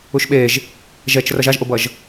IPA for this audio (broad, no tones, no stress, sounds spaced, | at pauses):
u ʃ ɓ e ʒ | ʒ ɛ t͡ʃ r ʌ ʒ a ʒ ʔ o b ʌ ʒ